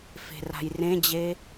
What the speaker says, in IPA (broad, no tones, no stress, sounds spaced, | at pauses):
f e̤ r a̤ j r ẽ d͡ʑ e